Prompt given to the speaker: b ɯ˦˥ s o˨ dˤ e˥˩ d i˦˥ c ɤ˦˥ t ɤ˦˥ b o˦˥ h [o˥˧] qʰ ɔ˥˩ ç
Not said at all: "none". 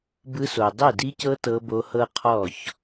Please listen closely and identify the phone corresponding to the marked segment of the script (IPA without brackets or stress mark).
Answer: ɤ˥˧